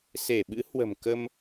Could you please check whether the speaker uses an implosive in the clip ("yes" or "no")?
yes